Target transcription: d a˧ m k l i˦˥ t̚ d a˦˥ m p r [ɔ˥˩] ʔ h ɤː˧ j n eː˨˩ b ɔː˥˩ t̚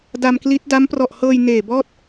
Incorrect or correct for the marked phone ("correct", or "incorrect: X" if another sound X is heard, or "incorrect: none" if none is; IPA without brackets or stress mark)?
incorrect: ɔ˨˩